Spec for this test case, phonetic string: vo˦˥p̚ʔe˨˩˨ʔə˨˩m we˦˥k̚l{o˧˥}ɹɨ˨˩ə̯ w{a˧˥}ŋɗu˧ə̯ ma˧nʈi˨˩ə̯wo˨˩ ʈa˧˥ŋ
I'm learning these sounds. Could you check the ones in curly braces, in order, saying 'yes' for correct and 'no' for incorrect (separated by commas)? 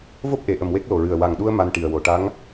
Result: no, no